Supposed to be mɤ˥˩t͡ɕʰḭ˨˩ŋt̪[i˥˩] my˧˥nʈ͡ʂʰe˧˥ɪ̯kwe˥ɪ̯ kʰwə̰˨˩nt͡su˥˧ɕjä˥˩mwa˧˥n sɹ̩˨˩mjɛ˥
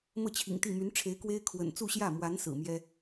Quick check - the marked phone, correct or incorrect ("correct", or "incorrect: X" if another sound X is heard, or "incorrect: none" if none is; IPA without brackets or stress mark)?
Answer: correct